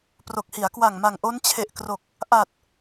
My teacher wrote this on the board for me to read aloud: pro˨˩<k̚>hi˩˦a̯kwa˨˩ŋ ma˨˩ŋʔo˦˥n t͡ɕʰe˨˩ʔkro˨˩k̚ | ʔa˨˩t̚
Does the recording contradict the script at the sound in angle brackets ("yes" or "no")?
no